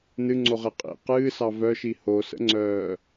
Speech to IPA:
n ɨ ŋ͡ǀ o ʁ e qʼ ḭ q ɨː s ɑ v œ ʃ i h o s ə̰ ŋ͡ǀ œː

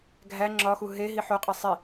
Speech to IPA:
ɡʱ æ ŋ͡ǁ ɒ x u ɦ e ɦ i ħ o qʼ e sˤ i

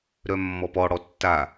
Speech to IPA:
ɾ œ mː ɔ p ɔ ɽ ɔ tː a

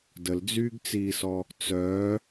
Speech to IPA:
d ə l d͡z yː ɡ t͡s iː s ɔ | t͡s œ

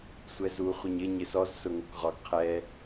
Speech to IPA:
sʷ ɛ z u χʷ i ɲ ɪ ɲ ɪ s ɔ z s ʊ ŋ o k ʁ ɔ ɡ qʰ ɛ

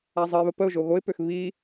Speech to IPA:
a zˤ ə ɪ̯ β ə p ə ʊ̯ ʒ o ɣ o ɪ̯ p ø x β i

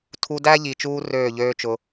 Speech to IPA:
tʰ u˧ d æ˦ ʎ i˨ t͡ʃ uː˧ r øː˦˨ ʎ øː˦ t͡ʃ ʊ˧

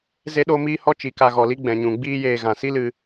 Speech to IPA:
z e˦ ɗ o˦ m iː˦ h ɔ˦ t͡ʃ i˨ k a˧ ɣ ɔ˨ l i˦ ɡ͡b ɛ̃˨ ɲ ũ˨ ɡ͡b iː˦ j eː˧ ɣ ã˨ s i˦ l ɨ˧

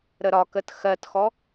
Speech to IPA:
ɾ ə ɾ ɒ k ə t x ɜ t x ɔ

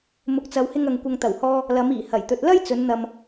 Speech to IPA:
m ʊ˨ k̚ t͡s ɐ˨ w h ɪ˧ ŋ ɐ˨ ŋ kʷ ɐ˨ ŋ t̪ ɐ˨˩ w h ɔː˧ | l ɐ˨˧ m iː˨˩ h ɐ˨˩ j t̪ ɵ˨ t̚ l ɐ˥ j t͡s ɵ˨˧ n n̪ ɐ˨ m

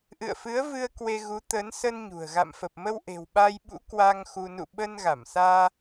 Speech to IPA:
ʔ ɨ̰˧˨ ə̯ f ɨ˨˦ ə̯ v ɨ˧ ə̯ k w e˧ ɣ u˨˦ t̪ ə˨˦ n s ə˧ n ɲ ṳ˨˩ ə̯ ɣ a̰˧˨ m f ə˨˩ p̚ m ə˧ w ʔ e̤˨˩ w ɓ a˧ j ɓ ṵ˧˥ k w a˧ ŋ x u˧ n ṵ˧˨ ɓ əː˧ n ɣ a˧˩ m s aː˧

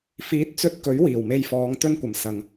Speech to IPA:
f iː˨˥ t̚ t͡s ɵ˧ t̚ k ɵ˨˥ ɥ w iː˨˩ w m e˧ j f ɔː˨˧ ŋ t̪ ɵ˥ n kʷ ɐ˨˧ m s ɐ˨ ŋ

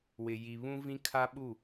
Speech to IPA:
w ɪ˨ j i˨ β ũ˦ v ĩ˦ kʰ a˦ ɓ u˦˨

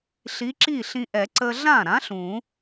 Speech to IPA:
ɬ i˨˥ ǁ i˥˩ ɬ ĩ˧ ʔ ɛ˨˩˦ ǀ ə˧ ɮ ã˥˩ ɾ ã˨˥ ɬ ũ˨˩˦

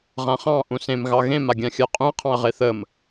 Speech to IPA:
ʁ ã χ ɑ̃ ʔ ũ s ẽ m ɣ ɑ ɣ ẽ m a ɡʲ ã xʲ ɜ qʼ ũ ɐ̯ qʰ ɑ̃ ɐ̯ ʁ e θ ə m

